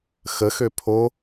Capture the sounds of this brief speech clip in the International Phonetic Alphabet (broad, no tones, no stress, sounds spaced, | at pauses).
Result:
x ə x ø pʰ o